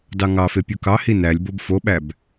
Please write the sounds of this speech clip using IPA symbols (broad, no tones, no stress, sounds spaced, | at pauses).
d ɑ ŋ ɑ f e pʲ u k ɑ h i n æ lʲ b o b f o ɓ æ b